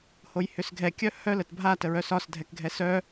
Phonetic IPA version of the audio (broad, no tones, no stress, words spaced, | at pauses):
hojhʏsɡʱɛkʲœ hœl ətbʱa təɹœsɒs dʱɛkɡʱɛsœ